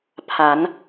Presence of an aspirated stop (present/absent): present